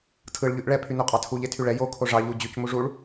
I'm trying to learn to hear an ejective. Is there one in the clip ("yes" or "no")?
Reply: yes